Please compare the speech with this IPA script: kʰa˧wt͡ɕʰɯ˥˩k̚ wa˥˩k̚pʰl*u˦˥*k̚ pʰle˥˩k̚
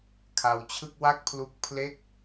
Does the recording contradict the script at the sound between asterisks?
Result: no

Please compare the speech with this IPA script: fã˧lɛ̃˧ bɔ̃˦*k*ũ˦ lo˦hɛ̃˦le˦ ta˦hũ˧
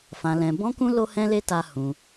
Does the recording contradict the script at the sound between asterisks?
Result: no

